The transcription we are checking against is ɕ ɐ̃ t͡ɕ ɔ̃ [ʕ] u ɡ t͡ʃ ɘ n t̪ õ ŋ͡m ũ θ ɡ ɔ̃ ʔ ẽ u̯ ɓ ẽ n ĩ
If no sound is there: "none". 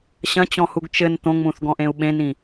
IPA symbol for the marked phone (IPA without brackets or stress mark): h